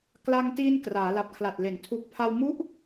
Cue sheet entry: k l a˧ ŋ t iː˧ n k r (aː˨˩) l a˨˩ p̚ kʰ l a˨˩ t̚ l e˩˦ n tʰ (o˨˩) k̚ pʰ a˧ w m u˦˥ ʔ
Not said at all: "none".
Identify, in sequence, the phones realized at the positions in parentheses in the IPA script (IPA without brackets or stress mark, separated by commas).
aː˩˦, u˨˩